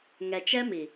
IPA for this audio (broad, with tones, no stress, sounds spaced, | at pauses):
ŋ ɛ˨ t͡ʃ ɛ˦ m i˨